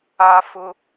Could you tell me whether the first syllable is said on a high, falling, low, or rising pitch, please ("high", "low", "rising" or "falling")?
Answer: high